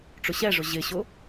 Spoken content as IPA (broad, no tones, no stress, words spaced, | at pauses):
ʈ͡ʂʊɕɛʐʊ ʑɪɕʊ